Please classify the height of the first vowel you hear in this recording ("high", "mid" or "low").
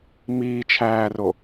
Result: high